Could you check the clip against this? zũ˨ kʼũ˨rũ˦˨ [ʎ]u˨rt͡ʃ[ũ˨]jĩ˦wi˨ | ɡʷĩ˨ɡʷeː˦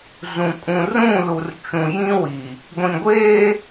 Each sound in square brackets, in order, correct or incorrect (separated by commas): incorrect, correct